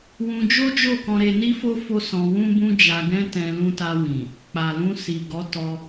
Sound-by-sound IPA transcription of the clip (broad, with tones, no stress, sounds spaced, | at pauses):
w ũ˧ d͡ʒ o˦ d͡ʒ o˦˨ k ɔ̃˧ ɾ e˧ n i˦ f o˦ f o˦ s ɔ̃˧ w ũ˦ b ũ˦ d͡ʒ a˧ ɡ ɛ̃˦ t ɛ̃˧ l ũ˧ t a˧ w ĩ˨ | k͡p a˨ l ũ˧ s i˨ ɡ ɔ˨˦ t ɔ˧